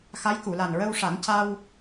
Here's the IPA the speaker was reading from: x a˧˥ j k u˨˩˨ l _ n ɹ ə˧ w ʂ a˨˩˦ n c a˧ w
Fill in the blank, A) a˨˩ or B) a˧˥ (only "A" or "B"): A